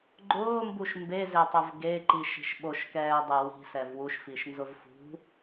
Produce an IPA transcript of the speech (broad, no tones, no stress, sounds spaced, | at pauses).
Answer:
ɡ͡ǃ ʊː m b u ʃ m b e z e tˤ ʊ v ɡ e ǃ i ʃ i̤ ʃ ɓ o ʃ k ɛː dˤ e w i̤ s ɛ v w u ʃ f i ʃ n z ʊ v f ṳ